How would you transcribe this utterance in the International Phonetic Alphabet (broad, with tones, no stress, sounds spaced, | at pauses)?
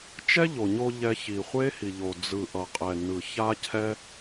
t͡ʃ ɛ˦ ʎ o˨ ɲ o˧ ʎ ɛ˧ ç i˨ χʷ e˦ h i˨ ʎ o˨ d͡z ɯ˨ ʔ ʌ˨ qʼ ɛ˨ n ɯ˨ ç a˦ cʰ ɛ˦